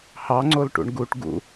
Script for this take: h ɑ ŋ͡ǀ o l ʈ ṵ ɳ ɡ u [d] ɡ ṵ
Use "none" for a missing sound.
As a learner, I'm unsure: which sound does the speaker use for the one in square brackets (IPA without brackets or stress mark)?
ʈ